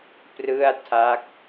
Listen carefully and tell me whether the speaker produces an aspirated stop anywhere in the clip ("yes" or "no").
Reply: yes